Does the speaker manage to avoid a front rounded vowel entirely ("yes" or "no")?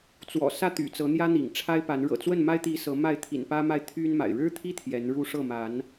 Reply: no